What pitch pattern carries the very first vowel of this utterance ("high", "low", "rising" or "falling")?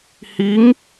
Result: rising